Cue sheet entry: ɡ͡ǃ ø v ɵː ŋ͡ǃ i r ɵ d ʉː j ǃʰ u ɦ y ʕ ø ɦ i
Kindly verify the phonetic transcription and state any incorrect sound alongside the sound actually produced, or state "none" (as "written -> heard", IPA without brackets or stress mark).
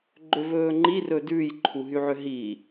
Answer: none